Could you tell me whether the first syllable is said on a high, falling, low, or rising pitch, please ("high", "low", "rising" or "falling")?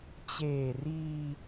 low